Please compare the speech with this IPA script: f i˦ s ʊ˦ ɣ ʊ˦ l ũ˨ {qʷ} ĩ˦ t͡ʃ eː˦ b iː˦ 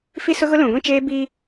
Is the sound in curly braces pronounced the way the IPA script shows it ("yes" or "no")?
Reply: no